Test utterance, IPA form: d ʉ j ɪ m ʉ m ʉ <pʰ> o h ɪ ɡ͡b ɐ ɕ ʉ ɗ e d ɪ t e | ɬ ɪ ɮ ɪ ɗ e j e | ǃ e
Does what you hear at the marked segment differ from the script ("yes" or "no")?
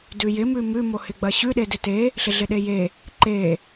yes